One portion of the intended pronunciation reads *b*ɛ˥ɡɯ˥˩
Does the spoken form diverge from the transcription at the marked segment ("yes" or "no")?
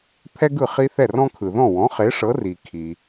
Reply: yes